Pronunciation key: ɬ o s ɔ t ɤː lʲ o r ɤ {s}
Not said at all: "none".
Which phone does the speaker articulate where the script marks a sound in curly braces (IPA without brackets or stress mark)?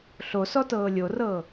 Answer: none